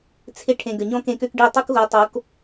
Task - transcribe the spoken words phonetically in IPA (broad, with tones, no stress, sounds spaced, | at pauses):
t͡sʰ ɪ˧ ʈʰ ẽ˨ ɡ ə˨ ɲ ɔ̃˦ k ẽ˧ k ø˦ k ɖ i˦˨ tˤ u˦ k ɣ o˨˦ tˤ o˨˦ k